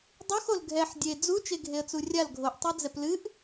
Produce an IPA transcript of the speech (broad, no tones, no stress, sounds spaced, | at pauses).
dˤ u x o l ɡʱ ɛ ħ dʲ e d͡z u t͡ʃ e ɡʱ e ə̯ t͡s u rʲ a l ɡʱ o ʔ tˤ e d͡z ɛ p l ɨ ʔ